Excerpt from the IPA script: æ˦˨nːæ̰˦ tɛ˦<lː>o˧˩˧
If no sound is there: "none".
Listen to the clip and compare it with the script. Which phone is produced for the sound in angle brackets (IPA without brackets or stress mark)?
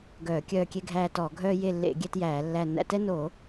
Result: n